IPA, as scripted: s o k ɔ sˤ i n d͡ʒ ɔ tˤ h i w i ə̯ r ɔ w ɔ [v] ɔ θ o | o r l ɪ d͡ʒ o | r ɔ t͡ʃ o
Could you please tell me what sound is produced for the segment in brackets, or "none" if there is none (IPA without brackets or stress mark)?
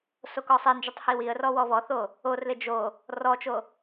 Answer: v